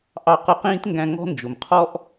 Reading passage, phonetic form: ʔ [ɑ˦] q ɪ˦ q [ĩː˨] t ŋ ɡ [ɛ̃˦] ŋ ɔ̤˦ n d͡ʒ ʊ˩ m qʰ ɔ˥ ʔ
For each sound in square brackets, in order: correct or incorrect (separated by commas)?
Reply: correct, incorrect, incorrect